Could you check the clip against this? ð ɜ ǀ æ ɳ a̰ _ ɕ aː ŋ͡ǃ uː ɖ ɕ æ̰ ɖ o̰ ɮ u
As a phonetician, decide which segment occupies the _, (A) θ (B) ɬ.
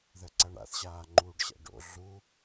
A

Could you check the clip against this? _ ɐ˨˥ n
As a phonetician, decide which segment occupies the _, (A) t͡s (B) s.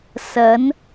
B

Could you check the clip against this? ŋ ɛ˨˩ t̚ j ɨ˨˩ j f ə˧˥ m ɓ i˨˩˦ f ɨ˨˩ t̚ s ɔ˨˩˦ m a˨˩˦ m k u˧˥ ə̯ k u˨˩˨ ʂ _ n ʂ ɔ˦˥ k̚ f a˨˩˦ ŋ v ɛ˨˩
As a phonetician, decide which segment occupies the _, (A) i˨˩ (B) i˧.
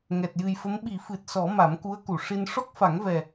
B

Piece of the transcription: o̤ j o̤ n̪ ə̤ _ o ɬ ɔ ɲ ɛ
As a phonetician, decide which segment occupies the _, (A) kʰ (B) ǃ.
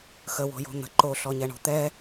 B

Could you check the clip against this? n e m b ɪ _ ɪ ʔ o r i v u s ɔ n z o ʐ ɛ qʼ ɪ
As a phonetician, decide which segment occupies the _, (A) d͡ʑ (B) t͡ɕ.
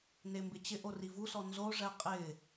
B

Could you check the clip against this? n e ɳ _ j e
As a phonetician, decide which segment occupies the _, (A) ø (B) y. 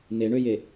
A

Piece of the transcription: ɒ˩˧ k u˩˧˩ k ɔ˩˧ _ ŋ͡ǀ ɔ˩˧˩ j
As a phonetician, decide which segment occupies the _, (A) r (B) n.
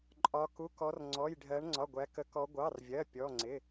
A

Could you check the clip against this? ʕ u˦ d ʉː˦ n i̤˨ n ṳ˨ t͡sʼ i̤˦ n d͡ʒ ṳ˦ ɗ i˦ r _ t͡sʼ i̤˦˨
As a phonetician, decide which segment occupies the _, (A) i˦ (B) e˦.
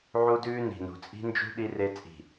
B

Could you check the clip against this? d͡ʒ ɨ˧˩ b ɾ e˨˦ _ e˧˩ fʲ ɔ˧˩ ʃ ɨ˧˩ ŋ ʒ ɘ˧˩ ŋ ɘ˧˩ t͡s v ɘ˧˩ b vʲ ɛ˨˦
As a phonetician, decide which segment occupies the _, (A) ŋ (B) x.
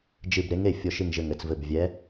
A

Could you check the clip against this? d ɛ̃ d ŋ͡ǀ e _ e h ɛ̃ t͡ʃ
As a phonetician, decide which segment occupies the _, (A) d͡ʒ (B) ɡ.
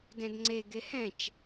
B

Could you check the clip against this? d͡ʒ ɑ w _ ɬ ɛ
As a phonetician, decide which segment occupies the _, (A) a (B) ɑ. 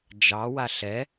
A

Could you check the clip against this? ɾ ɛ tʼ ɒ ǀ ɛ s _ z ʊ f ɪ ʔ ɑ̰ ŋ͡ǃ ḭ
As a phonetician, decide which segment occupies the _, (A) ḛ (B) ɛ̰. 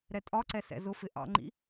B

